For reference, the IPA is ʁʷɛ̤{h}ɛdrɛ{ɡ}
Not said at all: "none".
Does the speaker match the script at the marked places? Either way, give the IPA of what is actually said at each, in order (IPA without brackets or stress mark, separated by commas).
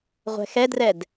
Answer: x, d